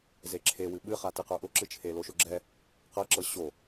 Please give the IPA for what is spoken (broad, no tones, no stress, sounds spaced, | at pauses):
z e ǁʰ e w ɨ ɓ ɨ χ a t ɨ q ə˞ ʔ ʊ ǁ ɨ t͡ʃʰ e l o ʃ ʊ ɡ͡ǁ ɛ | q ɤ ǁ ɤ ɕ o